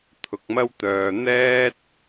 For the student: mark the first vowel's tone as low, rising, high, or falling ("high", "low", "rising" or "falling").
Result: low